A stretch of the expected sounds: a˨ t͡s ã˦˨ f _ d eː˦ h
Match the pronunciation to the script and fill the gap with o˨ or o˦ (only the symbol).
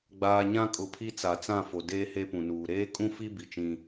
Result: o˨